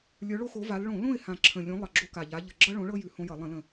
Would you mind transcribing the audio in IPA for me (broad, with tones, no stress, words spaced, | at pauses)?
lʲə˞˨˦ɭo˦xo˨˦ va˨˦l ɭõ˧˩˧ lõ˦˨ɪ̯hã˨˩ ǁʰə̃˨˩lʲõ˨˦ lˠʌ˨˩ɡ͡ǁo˦ka˨˩ʎa˨˦ ʎə˨˩ɡ͡ǁʌ˦ɭõ˨˦ɭɤ˦ jʉ˧˩˧ hõ˦jʌ˧˩˧ lˠə̃˧˩˧lə̃˨˩